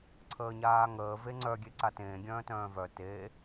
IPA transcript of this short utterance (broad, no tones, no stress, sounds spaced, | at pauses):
ǀʰ əː ɲ aː ŋ əː v e ŋ͡ǀ œ ɡʲ e ǀ a t ẽː ɡʲ œ̃ː t œ̃ː v œ t e